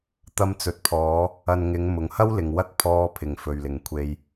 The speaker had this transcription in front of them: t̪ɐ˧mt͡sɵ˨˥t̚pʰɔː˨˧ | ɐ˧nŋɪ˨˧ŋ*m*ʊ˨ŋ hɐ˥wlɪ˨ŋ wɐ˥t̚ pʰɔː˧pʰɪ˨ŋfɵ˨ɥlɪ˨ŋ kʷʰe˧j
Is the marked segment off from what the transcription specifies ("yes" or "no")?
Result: no